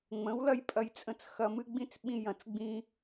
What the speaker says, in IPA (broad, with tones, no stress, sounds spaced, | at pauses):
ŋ͡m ə̃˨˦ w l ɐ˦ j pʼ ɐ˧ j t͡sʼ ə̃˧ t͡s x ɐ˧ m ɨ˦ ɡ͡b ĩ˦ t͡s ɓ ĩ˧ j ɐ̃˨ t͡s ɡ͡b ĩ˧